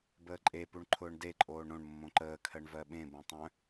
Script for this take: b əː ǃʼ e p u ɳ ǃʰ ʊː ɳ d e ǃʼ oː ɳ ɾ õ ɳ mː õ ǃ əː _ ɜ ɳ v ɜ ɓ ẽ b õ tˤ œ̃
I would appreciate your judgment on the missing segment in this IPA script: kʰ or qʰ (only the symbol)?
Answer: kʰ